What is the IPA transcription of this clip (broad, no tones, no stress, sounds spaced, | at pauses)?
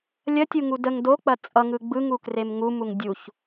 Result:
lʲ ɐ tʲ u ŋ u d ə ŋ d o k͡p ɐ t͡sʼ ʌ ŋ ɯ ɡ͡b ɯ ŋ u k r e m ŋ u m u ŋ dʲ u ç